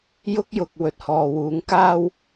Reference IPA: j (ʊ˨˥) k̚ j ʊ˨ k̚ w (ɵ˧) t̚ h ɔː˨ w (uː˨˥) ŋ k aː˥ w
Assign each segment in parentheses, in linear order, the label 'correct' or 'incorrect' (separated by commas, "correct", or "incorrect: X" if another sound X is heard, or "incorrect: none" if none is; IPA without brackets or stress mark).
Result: incorrect: ʊ˥, incorrect: ɵ˨, correct